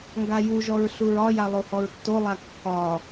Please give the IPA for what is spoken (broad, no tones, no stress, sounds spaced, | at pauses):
ŋ ɡ a j u ʒ ɔ ɹ ɬ u ɹ ɒ j a lˠ o h ɔ ɹ tː o lˠ a kː ɒ